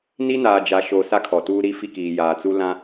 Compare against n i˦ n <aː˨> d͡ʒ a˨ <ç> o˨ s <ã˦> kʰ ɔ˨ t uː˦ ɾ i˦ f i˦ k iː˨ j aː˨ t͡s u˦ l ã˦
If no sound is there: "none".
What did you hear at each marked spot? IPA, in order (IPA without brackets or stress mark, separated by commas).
aː˨, ʃ, a˦